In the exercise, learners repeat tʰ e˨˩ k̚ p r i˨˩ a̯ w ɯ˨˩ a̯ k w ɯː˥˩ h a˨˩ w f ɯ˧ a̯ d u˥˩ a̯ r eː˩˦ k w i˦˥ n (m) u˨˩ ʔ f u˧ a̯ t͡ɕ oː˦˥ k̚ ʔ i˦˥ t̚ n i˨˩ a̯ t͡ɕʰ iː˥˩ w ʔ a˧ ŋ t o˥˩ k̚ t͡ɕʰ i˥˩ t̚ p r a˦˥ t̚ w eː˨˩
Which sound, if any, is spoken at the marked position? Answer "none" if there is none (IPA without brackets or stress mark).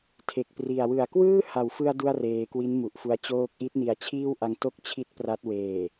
m